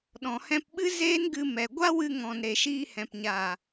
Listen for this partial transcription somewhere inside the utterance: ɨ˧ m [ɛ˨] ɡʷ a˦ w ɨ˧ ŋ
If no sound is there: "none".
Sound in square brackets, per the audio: ɛ˨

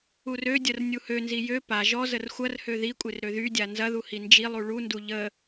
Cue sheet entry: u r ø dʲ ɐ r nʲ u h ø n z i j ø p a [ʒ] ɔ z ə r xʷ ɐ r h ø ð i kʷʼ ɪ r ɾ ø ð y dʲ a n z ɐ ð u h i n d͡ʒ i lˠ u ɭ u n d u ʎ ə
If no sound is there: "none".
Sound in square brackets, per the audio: ʒ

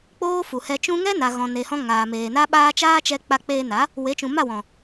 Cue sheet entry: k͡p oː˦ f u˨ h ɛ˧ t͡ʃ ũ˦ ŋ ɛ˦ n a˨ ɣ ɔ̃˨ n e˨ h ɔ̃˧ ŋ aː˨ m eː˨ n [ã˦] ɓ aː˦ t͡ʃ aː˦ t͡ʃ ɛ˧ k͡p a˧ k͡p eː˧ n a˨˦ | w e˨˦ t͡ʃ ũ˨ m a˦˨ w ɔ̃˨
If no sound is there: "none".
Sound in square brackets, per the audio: a˦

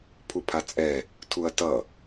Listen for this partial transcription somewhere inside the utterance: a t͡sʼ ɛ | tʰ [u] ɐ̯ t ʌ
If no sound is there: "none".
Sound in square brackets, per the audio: u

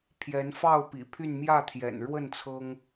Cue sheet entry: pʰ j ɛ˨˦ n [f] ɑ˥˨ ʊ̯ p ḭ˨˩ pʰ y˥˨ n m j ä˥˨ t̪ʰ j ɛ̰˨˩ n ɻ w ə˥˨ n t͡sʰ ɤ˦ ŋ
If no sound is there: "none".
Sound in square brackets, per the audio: f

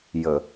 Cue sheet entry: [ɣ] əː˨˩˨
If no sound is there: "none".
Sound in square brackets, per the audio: j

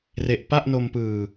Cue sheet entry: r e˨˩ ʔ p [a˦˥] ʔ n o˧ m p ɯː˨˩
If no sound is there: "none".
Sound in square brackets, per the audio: a˥˩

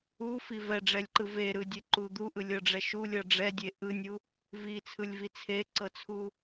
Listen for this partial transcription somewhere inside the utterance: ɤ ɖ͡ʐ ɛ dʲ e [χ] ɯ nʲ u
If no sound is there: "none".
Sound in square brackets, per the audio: ʔ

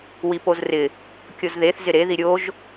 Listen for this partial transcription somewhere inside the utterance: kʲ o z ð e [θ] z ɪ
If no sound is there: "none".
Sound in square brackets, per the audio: θ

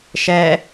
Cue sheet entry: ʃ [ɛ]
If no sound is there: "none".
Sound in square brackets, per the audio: ɛ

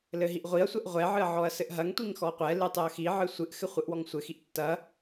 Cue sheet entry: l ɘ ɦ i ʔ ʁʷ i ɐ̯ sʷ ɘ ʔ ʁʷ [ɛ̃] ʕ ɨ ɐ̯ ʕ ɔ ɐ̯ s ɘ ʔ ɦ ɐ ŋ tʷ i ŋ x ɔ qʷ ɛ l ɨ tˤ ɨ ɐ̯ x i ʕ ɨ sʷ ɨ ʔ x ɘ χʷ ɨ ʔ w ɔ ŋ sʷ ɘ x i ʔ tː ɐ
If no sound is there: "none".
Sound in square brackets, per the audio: ɛ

